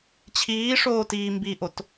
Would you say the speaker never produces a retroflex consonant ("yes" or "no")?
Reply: no